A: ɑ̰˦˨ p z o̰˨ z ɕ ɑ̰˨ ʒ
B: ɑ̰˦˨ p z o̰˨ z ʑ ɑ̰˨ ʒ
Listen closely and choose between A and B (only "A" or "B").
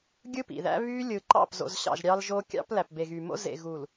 A